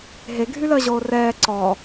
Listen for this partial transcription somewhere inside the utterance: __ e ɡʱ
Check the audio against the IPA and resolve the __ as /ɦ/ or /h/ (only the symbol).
ɦ